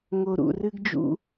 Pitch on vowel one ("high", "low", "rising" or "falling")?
low